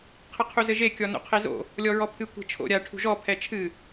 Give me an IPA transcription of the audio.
qʰ ɘ qʰ u z ɘ ʒ e kʲ ɔ n o̰ qʰ e z o̰ | lʲ ɔ ɹ ɔ pʰ ɨ kʷ e̤ t͡ʃʰ o̰ ɾʲ a ʈʰ ṳ ʒ ɔ pʰ ɛ t͡ʃʰ ɨ

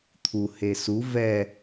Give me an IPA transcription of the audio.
t̪ʰ u h e s u v ɛ

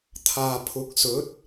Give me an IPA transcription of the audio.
t̪ʰ aː˨ pʰ ʊ˨˥ k̚ s ɵ˨˥ t̚

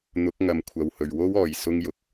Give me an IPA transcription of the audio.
n̪ ʊ˨˥ k̚ ŋ ɐ˨˧ m kʷʰ ɐ˨ w h ɵ˨ ɥ w o˥ w ɔː˨ j s ʊ˥ ŋ j ʊ˨ k̚

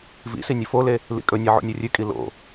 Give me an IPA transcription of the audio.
v ḭ s i nʲ ɵ f o l e | l ḭ kʼ ɵ nʲ e ʕ o̰ nʲ o rʲ ʉ kʼ i l o̰

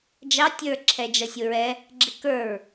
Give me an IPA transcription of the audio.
d͡ʒ ɑ tʲ ə˞ ǁʰ ɛ d͡ʒ ʌ sʲ ʊ ɹ ɛ | ɡ͡ǁ ɪ k ə˞ ɹ

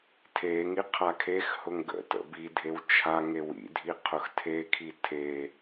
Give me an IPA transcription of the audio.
tʰ e ŋ i qʰ a kʰ e x h ʊ ŋ ɡ ə̰ t ə̰ b i dʱ e w t͡ʃʰ a ŋ e w ḭ dʱ i qʰ ʊ x tʰ e kʰ i tʰ e

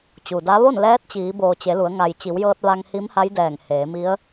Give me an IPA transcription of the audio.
t͡ɕ u˩ d a˧˥ ʋ o˥˨ n l ɛː˧˥ t̚ t͡ɕ iː˩˧ b oː˩ t͡ɕ e˩˧ l u˩˧ ə̯ ŋ a˩ j t͡ɕ i˩˧ w j ɤː˧ t̚ ʋ a˧ ŋ h i˧˥ m h a˧˥ j d ɛː˧˩ ŋ h eː˩˧ m i˧˥ ə̯

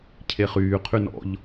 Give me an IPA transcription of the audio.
cʰ e χ yː qʰ y n ɔ̰ ʎ

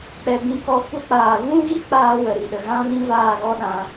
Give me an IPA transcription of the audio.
k͡p ɛ˧ b ĩ˧ k ɔ˧ kʷ ə˧ k͡p aː˨ v ũ˦ ɣ i˦ k͡p aː˦ w ə˨ ɾ i˧ ɗ ə˨ ɣ ã˦ v ĩ˦ v aː˦˨ ɣ ɔ˦ ɗ ã˧

